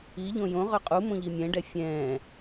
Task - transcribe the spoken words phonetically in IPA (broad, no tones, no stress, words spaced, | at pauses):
iʎõ jõ ʁœqʼumõ ʎimʲɛ̃ɖɛ fʲɛ̃